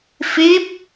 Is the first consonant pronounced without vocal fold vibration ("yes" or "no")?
yes